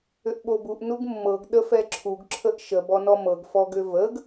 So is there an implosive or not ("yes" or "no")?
yes